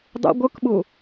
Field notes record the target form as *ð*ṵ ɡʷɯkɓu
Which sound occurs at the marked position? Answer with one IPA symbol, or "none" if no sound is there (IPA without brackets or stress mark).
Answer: dˤ